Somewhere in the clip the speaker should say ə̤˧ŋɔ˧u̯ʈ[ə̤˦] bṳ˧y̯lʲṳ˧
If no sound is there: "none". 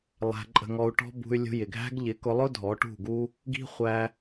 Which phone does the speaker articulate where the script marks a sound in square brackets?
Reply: ɔ̤˦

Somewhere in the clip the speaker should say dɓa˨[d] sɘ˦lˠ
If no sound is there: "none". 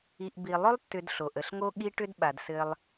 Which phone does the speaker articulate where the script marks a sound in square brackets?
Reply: d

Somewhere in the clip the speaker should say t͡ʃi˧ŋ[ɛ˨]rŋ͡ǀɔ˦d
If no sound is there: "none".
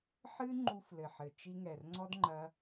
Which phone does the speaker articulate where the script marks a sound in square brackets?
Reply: ɛ˨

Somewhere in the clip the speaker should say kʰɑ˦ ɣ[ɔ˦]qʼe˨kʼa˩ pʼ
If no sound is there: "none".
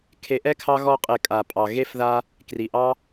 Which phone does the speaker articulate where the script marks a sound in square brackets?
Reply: ɔ˦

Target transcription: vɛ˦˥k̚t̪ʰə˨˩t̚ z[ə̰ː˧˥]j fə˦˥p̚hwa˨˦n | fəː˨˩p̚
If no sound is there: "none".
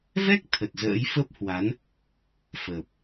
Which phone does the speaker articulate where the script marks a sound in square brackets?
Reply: ə̰ː˧˥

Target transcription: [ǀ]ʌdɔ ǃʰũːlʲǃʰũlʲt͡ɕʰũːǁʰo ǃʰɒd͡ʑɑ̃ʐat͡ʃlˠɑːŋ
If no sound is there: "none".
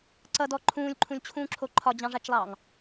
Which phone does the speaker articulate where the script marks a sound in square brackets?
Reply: ǀ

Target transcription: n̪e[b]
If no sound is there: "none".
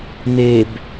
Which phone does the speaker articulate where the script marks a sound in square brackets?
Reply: b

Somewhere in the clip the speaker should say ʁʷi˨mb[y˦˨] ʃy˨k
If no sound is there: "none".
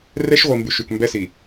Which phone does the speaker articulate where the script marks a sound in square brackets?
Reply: y˨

